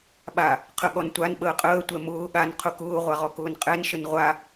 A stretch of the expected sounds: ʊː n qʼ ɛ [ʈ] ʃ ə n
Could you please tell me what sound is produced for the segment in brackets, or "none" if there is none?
n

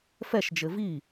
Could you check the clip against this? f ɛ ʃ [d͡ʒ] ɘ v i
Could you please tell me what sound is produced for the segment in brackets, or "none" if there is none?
d͡ʒ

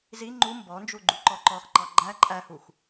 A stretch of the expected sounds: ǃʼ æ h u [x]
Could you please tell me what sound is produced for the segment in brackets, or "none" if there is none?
x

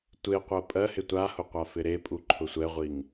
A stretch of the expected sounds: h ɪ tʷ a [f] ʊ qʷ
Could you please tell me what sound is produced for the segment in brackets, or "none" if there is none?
h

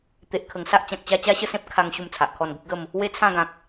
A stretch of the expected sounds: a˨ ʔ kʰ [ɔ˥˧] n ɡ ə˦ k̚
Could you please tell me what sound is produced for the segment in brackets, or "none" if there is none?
ɔ˥˧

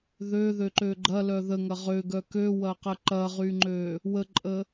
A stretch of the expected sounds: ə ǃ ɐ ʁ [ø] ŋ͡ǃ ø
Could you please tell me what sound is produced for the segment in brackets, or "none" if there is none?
y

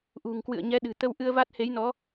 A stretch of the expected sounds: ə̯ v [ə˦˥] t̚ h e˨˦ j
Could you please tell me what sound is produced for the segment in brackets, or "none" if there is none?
a˦˥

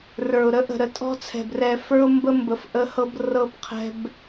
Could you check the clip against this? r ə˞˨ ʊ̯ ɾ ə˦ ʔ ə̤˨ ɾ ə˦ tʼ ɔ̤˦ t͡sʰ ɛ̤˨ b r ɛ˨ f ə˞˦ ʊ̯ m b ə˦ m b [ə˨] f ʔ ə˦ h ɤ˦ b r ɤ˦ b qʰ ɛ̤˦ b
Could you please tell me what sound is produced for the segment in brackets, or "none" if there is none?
ə˨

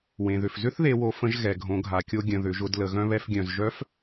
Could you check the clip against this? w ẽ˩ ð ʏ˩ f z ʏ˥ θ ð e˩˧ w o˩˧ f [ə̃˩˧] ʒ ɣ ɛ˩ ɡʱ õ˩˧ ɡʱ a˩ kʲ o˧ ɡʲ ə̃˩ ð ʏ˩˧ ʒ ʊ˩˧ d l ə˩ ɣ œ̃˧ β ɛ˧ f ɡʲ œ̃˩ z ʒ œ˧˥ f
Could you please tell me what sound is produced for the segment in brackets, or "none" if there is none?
ə̃˩˧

